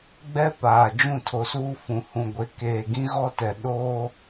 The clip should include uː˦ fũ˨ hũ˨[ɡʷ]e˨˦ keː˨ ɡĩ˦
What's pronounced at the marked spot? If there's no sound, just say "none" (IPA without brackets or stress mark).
ɡʷ